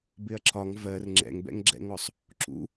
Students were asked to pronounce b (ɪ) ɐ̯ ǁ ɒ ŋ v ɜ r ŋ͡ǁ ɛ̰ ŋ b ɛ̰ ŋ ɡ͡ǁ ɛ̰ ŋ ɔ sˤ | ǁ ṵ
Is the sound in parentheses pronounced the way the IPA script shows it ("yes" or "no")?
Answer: yes